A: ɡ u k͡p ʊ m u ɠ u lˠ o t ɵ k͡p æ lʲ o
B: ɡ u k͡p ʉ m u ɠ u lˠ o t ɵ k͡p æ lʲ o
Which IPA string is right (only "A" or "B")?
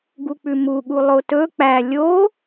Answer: B